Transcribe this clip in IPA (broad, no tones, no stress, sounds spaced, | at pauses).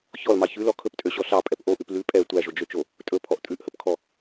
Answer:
ç ɔ l m ɑ ç ʉ l ɔ kʰ ɵ p tʼ ø ɕ ɔ ɬ ɑ pʼ ɛ p ʔ o ʔ ʉ p l ʉ pʼ ɛ tʷ æ ʒ o d͡ʒ ø t͡ʃ o | tʼ ɵ pʰ ɔ ʔ tʼ ʉ ʔ h ɵ p kʰ ɔ